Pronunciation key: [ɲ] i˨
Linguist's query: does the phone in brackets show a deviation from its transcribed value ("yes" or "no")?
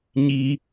no